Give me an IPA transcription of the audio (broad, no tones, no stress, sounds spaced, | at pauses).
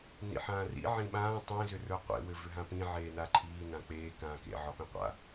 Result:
n ḭ ħ ãː r ḭ ʕ ĩ ɓ ãː tˤ ẽ z ʏ r ə˞ qʷ ḛ w ɘ v ʏ ɦ ã p ĩ ʕ eː n a ǃʰ iː n ã k͡p eː k ãː k ḛ ʕ ɒ p ĩ qʷ a̰